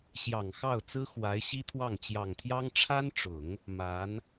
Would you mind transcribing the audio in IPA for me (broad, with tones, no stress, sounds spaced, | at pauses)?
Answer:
ɕ j ɑ˨˩ ŋ x ɑ˥˩ ʊ̯ t͡s ɹ̩˥ x w a˧˥ ɪ̯ ɕ i˥ t̪ʰ w ɑ˥˩ ŋ t͡ɕ j ɑ˨˩ ŋ t̪ʰ j ɑ˥ ŋ ʈ͡ʂʰ a˥ n ʈ͡ʂ ʊ˨˩˦ ŋ | m a˧˥ n